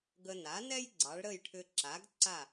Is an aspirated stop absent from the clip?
no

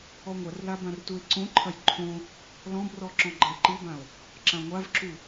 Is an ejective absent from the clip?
yes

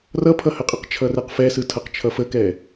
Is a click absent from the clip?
yes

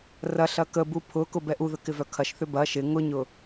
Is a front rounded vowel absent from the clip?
no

